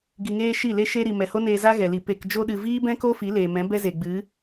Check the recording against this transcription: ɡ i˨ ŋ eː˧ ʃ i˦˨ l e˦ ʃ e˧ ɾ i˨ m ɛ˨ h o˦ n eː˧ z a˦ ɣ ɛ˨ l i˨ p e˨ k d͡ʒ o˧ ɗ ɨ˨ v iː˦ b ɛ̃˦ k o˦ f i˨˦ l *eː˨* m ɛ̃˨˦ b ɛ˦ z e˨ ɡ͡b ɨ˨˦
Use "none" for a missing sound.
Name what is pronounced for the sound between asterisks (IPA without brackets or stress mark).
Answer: eː˨